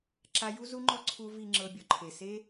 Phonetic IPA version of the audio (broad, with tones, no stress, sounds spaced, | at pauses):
ǁ a˧ j u˦ z u˧ ŋ͡ǃ ɔ˧ ǀʰ u˧ v i˨ ŋ͡ǁ ɤ˧ bʲ ɔ˨ ǃʰ e˨ s e˧